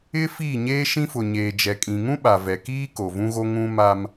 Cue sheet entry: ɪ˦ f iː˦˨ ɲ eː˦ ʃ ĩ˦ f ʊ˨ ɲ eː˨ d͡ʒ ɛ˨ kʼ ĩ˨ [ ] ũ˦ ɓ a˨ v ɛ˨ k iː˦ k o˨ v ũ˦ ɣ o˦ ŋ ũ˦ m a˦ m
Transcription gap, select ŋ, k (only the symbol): ŋ